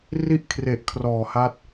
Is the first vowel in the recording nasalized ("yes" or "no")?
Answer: no